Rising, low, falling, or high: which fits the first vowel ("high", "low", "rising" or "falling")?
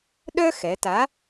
high